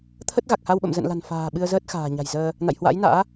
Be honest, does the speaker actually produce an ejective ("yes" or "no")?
no